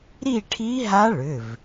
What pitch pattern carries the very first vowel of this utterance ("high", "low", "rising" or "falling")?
falling